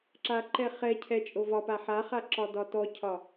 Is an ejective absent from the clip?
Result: no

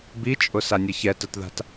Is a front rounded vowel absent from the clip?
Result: yes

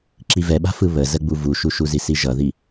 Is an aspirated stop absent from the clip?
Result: yes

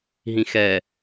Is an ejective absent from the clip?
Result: yes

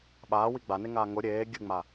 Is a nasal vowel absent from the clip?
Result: yes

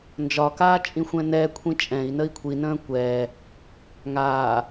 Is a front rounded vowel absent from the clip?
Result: yes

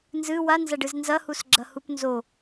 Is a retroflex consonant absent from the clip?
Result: no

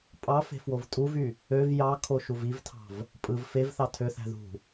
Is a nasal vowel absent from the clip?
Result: yes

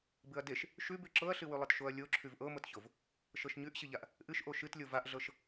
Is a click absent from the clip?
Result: no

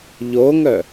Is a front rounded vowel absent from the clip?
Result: no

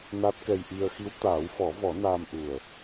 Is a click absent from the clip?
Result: yes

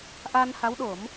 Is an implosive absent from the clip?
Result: no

